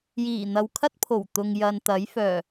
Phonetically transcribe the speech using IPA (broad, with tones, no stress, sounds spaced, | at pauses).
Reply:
j iː˨˩ n̪ ɐ˨ w kʰ ɐ˥ t̚ pʰ o˨˩ w t̪ ʊ˨ ŋ j ɐ˨ n t̪ ɐ˨˥ j f œː˨˩